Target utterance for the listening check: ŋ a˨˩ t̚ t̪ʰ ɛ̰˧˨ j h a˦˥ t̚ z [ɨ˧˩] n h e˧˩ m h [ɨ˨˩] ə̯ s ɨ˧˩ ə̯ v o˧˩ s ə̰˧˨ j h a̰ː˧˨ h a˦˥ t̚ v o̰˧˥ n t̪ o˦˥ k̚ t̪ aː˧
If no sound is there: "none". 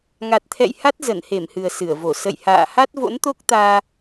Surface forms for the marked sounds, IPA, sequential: ə˧˩, ɨ˨˩

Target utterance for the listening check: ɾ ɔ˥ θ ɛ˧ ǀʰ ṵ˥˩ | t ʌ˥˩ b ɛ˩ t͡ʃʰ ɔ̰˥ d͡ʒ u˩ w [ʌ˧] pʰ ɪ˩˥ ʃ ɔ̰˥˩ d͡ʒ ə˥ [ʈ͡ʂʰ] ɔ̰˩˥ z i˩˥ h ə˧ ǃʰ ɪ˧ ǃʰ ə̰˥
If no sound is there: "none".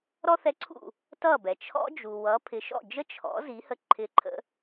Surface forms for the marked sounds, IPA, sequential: ʌ˩˥, t͡ʃʰ

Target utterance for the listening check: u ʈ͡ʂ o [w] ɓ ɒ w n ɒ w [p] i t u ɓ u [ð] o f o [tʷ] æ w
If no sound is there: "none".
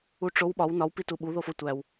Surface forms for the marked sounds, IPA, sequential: w, p, ð, tʷ

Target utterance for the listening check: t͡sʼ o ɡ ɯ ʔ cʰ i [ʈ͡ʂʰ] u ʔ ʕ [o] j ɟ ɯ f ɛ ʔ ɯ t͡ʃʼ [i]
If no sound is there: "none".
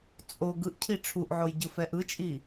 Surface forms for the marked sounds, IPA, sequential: ʈ͡ʂʰ, o, i

